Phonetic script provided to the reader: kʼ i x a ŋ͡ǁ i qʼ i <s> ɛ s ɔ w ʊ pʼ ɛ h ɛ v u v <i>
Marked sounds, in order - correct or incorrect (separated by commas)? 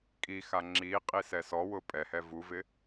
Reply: correct, incorrect